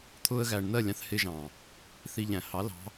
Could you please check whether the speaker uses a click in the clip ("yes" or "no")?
no